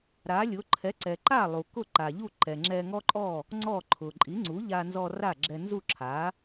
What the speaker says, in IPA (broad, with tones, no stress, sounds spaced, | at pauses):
ɾ a˩˥ lʲ ʊ˩˥ ǃʰ ɛ˩˥ ǀ ɛ˩ ǃ a˥˩ lˠ u˩ k ʊ˥˩ ǃ a˩ ʎ u˥˩ ǃ ɛ˩ ŋ͡ǁ ɛ˧ ŋ ɔ˥ ǃʼ ɔ˥˩ | ŋ͡ǀ ɔ˥˩ ǃʰ ʊ˩ ǃʼ i˩˥ ŋ͡ǀ u˩˥ ʎ a˧ n z ɔ˧ r a˥˩ ɡ͡ǁ ɛ˧ n z u˥˩ ǁʰ a˩˥